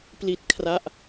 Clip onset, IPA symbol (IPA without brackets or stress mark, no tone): p